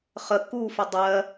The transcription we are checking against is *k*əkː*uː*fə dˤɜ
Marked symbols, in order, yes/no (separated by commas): no, yes